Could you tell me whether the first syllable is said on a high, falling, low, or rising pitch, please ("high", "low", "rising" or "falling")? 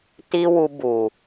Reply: high